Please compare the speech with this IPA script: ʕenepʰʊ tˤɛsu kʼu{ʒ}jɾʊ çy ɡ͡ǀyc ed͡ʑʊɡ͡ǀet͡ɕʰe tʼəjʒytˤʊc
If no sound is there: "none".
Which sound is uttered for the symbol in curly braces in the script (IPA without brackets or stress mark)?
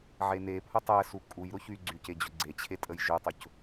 none